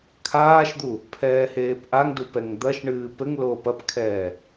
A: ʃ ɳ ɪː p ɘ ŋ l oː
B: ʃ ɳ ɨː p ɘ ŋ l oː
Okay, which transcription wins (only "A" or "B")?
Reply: B